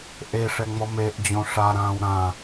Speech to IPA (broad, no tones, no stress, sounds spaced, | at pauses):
ʔ e ʂ ɛ ŋ͡m ɔ m e ʔ d͡ʑ õ ʂ a ɾ ãː w ɾ ã